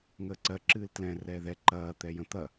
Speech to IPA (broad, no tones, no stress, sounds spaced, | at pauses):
ŋ əː ǀ ɜ ǁ ɨː l t l ɛ̃ r ɛː ð ɛ ǃ ɐː t̪ ɛ j ə̃ t̪ ɐ